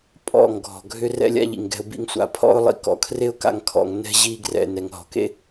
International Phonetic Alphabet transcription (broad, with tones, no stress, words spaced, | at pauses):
pʼɔ̰˦˨ŋɡʱɔ̤˨ ɡʱʏ˧ rɛ̰˦lʲa̰˦ʎḭ˨ŋɡɛ̤˧ʊ̯ bḭ˧ŋsʷa̰˨pʰɔ̰˦ʊ̯ lˠḭ˧kɔ̰˧kʰre˦ʊ̯ ka̰˧ŋkʰɔ̰˨ŋ nɛ̤˧ʑi˧ɡrɛ̰˨ nɛ˨ŋɦɔ̤˨kḛ˦